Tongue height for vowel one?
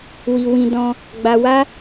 high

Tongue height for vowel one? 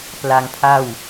low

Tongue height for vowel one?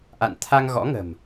low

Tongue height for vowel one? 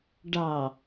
low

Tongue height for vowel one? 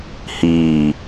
high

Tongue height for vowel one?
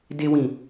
mid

